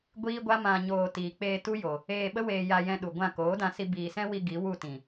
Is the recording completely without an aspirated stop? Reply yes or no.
yes